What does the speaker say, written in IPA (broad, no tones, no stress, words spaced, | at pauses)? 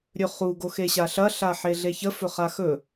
ɾʲɵχu ɡoxeɕaɬɐ ɬaħeɮeçə fɵχaxɵ